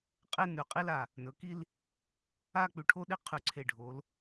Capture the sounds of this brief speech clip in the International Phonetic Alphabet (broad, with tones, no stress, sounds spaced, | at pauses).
qʼ e˥ n ʉ˩˧ qʼ i˥ l a˧˩ | n ɵ˩˧ k i˥˧ l | a˥˧ k͡p ʉ˧˩ ʈʰ o˥˧ ɗ i˥ qʰ ʉ˧˩ ǀʰ e˧˩ ɖʱ o˩˧ l